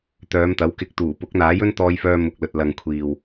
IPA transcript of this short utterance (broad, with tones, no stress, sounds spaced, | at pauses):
t̪ œː˨˧ m t̪ ɐ˨˥ w k ɪ˧ k̚ t̪ uː˨˩ p ʊ˨˥ k̚ n̪ aː˨˥ j ɵ˥ n t̪ ɔː˧ j f œː˧ m ʊ˨ k̚ l ɵ˨ t̚ l ɐ˨ ŋ kʷʰ iː˨ w